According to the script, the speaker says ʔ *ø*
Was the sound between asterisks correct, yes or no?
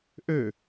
yes